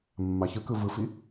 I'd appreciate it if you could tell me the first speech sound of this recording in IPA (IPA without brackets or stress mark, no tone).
mː